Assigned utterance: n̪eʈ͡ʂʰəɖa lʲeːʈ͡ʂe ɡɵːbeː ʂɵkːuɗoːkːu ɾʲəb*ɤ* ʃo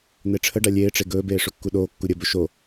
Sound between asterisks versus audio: incorrect: ɵ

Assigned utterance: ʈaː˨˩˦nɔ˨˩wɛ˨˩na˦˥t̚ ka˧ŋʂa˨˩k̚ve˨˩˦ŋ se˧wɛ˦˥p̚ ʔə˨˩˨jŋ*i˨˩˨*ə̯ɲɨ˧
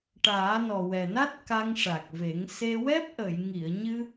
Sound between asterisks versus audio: correct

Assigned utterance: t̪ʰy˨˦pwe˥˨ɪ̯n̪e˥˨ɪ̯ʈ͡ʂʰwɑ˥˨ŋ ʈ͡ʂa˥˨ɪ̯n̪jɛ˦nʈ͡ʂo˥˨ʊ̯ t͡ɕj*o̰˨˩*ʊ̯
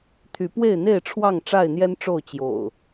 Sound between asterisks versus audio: correct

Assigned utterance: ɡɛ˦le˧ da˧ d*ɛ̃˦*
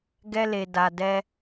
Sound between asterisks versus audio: incorrect: ɛ˦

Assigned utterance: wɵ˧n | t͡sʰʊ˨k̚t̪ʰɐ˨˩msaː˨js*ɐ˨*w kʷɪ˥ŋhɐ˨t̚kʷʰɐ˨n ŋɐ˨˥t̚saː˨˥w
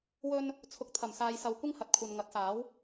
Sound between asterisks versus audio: correct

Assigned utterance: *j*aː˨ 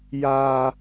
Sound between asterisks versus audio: correct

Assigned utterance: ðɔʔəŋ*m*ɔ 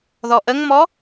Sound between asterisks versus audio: correct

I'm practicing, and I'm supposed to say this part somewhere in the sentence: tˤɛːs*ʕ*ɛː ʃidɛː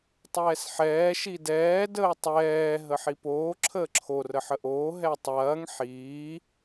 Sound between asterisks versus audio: incorrect: ħ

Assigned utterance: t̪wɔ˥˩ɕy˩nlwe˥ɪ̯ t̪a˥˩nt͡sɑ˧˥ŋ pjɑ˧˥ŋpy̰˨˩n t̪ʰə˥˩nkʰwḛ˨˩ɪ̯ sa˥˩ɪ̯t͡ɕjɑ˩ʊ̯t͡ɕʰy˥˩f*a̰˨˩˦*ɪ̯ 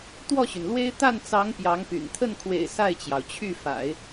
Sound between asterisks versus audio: correct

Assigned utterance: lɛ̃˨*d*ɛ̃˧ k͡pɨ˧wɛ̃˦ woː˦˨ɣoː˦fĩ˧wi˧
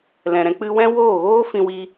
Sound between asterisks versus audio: incorrect: ɾ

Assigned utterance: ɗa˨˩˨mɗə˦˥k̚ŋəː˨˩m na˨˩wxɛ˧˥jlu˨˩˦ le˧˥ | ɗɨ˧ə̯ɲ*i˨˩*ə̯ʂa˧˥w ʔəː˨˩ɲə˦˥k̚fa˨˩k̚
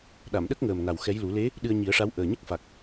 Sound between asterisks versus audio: incorrect: i˨˩˦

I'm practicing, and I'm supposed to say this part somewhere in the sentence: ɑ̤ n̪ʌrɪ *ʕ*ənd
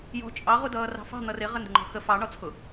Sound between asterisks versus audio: incorrect: ʁ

